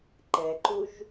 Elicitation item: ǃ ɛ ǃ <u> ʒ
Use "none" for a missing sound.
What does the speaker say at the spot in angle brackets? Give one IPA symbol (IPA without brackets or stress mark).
u